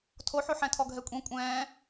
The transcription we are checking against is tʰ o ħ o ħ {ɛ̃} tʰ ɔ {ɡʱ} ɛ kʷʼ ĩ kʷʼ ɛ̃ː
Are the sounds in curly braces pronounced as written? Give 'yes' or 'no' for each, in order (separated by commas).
yes, yes